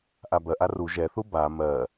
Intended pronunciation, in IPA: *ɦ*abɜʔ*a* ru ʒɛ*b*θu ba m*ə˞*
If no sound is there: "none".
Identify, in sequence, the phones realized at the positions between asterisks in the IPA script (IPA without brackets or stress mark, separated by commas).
ʔ, a, none, ɜ